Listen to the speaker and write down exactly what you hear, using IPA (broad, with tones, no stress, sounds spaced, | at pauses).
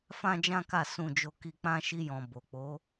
f ã˦ d͡ʒ ã˦ k a˦˨ s ũ˧ d͡ʒ o˧ k i˧ k͡p ã˦ ʃ i˧ j ɔ̃˨ b o˨ k͡p o˨˦